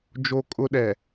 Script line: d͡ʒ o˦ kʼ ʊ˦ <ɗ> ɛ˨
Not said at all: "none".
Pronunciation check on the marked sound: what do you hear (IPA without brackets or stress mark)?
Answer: ɗ